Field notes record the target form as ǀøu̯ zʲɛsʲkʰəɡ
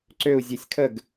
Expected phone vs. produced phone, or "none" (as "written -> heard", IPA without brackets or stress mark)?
none